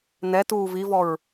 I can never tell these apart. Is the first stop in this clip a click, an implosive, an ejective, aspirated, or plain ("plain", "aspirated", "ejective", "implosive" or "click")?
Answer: plain